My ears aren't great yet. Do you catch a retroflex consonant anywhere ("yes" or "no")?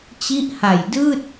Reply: no